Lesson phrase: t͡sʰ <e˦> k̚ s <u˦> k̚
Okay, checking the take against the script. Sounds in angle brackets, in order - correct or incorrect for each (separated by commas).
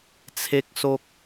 correct, incorrect